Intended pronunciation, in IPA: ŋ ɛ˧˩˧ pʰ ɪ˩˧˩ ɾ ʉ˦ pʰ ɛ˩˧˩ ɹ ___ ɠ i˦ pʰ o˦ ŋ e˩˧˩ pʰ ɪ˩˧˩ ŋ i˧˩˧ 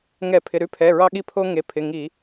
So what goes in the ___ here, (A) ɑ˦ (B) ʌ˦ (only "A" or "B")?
A